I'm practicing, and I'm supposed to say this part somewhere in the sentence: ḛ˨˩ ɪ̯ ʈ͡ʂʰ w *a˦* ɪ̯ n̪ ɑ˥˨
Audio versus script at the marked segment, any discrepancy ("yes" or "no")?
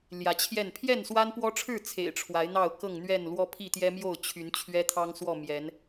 yes